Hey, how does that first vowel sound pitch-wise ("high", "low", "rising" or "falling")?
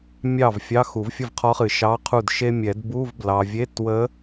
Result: falling